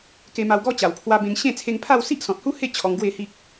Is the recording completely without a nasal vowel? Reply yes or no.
no